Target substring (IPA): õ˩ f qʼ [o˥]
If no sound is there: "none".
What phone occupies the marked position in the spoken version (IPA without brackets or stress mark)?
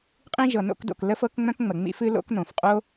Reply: o˥